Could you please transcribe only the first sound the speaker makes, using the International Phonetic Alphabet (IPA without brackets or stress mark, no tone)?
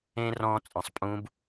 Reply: ẽ